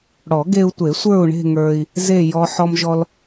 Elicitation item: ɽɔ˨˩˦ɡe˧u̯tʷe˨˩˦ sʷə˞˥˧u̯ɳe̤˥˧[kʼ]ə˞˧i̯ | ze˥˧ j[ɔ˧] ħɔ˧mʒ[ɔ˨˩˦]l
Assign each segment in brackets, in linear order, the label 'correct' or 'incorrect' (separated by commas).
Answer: incorrect, correct, incorrect